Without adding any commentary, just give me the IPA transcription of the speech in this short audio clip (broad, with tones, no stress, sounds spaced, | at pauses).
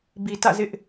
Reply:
b i˨ t ä̰˦˨ z ɪ˦ ʔ